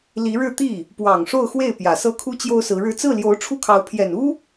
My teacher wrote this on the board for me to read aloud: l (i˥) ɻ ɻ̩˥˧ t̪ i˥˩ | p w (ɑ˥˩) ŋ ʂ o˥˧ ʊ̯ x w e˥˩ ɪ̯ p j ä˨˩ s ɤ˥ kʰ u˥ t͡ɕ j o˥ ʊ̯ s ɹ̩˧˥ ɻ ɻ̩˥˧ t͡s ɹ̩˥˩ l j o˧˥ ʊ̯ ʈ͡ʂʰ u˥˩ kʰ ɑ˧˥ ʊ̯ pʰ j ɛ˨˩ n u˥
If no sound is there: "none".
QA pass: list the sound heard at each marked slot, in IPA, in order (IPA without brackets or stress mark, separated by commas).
i˧˥, ɑ˨˩